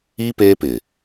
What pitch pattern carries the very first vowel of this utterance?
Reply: high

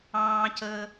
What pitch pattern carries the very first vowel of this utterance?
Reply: high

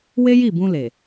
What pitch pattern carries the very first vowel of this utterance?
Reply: high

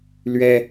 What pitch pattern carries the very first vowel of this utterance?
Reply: high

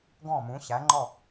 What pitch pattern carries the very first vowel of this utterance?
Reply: falling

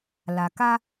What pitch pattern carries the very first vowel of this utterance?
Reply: low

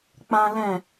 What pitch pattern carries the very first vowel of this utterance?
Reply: high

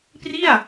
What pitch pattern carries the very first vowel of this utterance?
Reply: falling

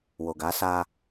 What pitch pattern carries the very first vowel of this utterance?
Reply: low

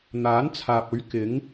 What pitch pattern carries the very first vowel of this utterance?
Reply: rising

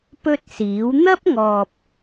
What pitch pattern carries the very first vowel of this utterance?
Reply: high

